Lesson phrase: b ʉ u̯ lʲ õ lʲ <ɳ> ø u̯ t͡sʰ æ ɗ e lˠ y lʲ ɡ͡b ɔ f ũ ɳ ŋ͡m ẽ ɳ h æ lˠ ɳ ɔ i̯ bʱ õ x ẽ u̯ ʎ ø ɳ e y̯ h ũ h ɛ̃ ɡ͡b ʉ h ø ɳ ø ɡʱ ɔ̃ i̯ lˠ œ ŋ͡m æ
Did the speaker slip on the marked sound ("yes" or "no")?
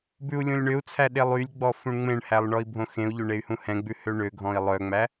no